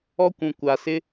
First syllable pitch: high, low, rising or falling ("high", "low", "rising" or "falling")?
high